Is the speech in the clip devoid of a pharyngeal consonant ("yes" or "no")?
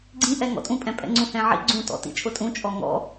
no